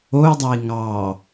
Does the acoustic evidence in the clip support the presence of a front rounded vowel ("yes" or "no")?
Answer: yes